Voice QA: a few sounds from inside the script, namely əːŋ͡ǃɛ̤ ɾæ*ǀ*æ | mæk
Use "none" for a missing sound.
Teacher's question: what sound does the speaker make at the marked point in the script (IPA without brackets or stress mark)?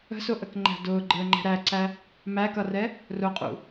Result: ǀ